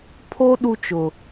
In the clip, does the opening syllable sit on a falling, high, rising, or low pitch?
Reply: high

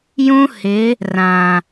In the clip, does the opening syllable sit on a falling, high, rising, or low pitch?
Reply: high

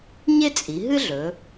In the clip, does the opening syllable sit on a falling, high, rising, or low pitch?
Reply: high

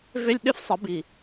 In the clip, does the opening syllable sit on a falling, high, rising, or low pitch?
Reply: high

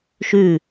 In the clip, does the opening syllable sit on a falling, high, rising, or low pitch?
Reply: falling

